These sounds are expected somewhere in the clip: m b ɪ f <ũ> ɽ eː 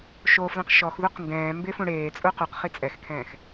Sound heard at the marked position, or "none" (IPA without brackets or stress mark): ũ